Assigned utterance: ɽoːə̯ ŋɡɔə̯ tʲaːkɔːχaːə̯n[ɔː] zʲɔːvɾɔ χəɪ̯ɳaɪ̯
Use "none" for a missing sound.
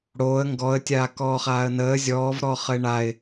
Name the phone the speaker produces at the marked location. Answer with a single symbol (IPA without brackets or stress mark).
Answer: əː